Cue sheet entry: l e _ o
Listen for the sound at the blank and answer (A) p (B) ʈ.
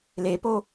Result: A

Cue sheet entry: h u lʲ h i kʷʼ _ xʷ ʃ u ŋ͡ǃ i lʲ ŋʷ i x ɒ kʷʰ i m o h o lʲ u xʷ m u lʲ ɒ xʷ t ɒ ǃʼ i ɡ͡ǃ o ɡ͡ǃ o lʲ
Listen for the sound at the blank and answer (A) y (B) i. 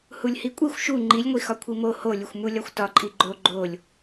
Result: B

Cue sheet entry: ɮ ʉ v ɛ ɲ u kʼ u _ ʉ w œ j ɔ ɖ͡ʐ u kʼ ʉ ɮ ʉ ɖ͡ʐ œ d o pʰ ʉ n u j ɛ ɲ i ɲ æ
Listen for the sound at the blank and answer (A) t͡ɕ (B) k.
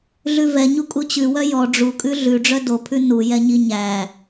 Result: A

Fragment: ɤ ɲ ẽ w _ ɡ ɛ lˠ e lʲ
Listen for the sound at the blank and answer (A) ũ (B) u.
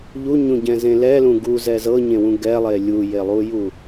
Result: A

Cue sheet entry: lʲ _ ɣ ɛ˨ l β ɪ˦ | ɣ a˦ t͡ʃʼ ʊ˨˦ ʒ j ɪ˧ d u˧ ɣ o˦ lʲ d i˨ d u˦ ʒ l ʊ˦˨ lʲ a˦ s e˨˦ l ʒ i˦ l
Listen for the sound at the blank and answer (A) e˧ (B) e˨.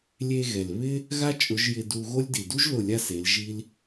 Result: A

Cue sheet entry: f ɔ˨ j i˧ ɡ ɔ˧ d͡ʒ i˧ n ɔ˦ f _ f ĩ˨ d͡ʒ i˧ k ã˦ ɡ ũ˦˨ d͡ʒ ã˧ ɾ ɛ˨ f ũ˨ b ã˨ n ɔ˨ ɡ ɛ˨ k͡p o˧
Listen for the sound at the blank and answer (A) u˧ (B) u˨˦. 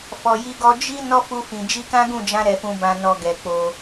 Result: A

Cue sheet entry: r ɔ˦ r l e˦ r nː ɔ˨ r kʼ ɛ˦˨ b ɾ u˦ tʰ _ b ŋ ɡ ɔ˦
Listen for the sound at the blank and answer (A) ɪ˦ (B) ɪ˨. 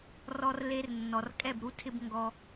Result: A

